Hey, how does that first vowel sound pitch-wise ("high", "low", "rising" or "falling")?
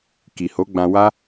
low